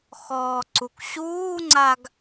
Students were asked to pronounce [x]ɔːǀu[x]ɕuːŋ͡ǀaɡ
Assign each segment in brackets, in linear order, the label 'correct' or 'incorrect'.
correct, incorrect

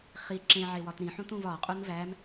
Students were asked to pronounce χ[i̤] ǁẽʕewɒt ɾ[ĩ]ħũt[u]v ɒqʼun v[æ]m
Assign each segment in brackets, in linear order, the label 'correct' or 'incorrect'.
incorrect, correct, incorrect, correct

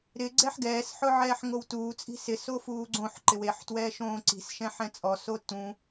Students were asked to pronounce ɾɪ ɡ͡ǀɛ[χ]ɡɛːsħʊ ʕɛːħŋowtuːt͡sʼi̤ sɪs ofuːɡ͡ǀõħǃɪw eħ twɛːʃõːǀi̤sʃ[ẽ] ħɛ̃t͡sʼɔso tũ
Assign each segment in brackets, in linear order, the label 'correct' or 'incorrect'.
incorrect, incorrect

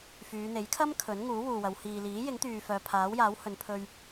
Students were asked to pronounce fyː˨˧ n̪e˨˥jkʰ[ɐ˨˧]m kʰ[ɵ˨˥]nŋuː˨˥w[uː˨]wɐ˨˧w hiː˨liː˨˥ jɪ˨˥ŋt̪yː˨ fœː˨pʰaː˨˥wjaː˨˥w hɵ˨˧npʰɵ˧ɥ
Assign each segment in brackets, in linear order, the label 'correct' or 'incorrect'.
incorrect, correct, correct

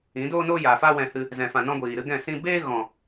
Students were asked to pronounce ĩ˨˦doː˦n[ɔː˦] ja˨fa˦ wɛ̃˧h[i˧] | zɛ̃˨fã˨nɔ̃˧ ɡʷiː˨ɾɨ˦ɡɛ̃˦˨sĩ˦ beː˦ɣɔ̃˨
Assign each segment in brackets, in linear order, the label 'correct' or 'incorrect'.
incorrect, incorrect

